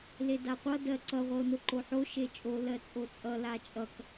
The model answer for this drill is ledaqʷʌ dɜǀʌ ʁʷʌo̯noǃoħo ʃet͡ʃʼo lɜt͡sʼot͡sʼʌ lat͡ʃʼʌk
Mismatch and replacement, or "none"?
none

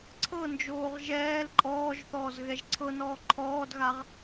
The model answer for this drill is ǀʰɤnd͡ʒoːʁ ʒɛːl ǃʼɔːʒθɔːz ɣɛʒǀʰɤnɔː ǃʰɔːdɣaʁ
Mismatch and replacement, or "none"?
none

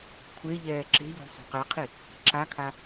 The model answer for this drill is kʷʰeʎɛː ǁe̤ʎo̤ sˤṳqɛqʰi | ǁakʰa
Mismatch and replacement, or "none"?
ṳ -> o̤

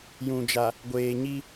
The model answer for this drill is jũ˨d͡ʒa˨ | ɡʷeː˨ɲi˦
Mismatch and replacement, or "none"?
none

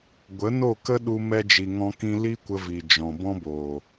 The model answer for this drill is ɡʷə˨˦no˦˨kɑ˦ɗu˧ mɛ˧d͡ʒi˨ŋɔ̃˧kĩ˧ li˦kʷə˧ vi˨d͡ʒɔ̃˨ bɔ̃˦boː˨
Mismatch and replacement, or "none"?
ɑ˦ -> ə˦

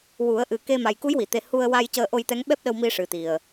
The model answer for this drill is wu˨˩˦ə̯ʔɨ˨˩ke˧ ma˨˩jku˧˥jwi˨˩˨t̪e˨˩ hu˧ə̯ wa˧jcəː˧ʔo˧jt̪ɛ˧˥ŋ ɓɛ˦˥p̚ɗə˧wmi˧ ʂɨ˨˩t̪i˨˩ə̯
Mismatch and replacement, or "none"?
none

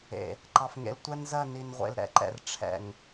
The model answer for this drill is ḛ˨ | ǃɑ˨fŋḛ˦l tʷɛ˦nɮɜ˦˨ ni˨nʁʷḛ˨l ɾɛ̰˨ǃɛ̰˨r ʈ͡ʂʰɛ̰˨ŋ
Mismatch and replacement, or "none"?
ɮ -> z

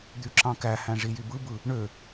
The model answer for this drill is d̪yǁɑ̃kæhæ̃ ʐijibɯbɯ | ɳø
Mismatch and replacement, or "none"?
none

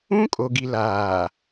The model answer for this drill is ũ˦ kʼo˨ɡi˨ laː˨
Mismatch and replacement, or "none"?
none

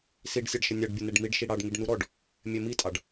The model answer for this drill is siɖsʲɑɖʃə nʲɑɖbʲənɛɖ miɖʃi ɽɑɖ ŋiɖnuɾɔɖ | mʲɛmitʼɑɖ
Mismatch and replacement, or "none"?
none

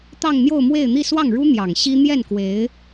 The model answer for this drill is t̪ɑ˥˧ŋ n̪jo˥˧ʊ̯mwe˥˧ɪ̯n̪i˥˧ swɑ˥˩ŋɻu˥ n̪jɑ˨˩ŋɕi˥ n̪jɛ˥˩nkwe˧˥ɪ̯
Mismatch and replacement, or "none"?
none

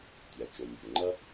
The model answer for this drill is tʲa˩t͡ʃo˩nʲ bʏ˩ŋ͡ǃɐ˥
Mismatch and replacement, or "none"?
none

